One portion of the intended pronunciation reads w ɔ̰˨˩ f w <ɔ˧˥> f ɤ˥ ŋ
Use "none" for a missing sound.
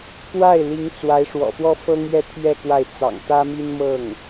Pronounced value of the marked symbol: ɔ˥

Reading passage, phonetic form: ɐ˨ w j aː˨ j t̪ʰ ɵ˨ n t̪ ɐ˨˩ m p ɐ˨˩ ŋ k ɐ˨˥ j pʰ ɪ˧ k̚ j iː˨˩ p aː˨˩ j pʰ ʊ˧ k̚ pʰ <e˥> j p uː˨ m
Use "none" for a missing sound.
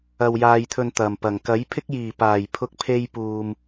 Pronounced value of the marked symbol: e˧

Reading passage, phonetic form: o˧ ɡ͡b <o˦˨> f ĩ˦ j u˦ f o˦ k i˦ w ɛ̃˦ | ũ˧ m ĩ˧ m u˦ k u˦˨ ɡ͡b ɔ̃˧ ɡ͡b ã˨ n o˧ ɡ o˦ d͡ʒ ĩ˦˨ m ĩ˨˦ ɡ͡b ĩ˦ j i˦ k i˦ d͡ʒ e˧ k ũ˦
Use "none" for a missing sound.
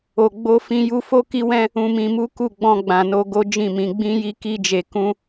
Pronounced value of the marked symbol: o˦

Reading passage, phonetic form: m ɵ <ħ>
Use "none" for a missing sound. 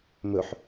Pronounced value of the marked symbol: ħ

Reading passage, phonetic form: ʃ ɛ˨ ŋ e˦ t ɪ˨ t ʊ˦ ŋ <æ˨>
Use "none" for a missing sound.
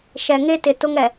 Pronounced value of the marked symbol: ɛ˨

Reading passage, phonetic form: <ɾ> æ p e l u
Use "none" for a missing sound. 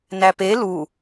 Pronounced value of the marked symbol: n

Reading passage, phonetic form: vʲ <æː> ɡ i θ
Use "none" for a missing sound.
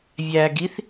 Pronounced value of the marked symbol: æː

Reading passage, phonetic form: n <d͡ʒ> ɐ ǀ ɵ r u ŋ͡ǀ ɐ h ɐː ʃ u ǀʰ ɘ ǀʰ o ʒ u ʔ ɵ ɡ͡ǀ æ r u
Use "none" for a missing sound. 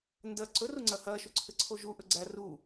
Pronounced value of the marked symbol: d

